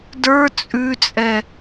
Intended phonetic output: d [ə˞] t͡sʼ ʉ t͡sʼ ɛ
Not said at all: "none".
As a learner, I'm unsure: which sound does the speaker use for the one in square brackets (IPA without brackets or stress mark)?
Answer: ə˞